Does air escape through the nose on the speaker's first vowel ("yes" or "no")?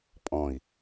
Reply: yes